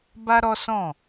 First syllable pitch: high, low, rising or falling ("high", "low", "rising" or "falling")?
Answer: high